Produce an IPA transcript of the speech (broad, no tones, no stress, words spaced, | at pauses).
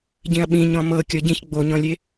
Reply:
ɟĩɐ̯ɓĩ ɲɔ̃mɤ kʲɔɟĩç ɡ͡boɲɔ̃lʲe